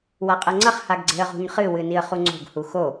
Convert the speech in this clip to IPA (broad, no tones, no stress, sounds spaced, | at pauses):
w a qʼ ɐ ŋ͡ǀ ɐ χ h a ɡ ɡ͡ǀ e̤ ə̯ ʁ ṳ ɲ χ ɨ w ɨ n i ə̯ χ u ŋ͡ǀ o̤ ɡ h u x o